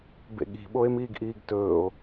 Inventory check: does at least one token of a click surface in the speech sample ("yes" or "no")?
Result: no